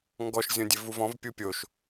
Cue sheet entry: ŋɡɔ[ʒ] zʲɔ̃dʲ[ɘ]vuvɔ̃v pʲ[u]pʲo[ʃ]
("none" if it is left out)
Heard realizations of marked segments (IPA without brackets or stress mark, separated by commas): ʃ, ɘ, u, ʃ